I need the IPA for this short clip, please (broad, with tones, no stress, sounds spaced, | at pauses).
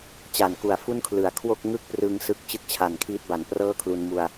t͡ɕ a˩˦ n k u˨˩ a̯ f u˥˩ n kʰ l ɯ˩˦ a̯ kʰ w o˥˩ k̚ ŋ ɯ˥˩ k̚ p r ɯ˧ ŋ s ɯ˦˥ k̚ t͡ɕ ɯ˥˩ k̚ t͡ɕʰ a˨˩ n kʰ iː˦˥ t̚ b a˩˦ n p r ɤː˥˩ kʰ l u˧ n m u˧ a̯